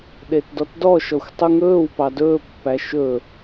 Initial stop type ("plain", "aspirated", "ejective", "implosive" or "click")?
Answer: implosive